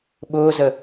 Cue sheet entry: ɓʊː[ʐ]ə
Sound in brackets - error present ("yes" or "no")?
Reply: yes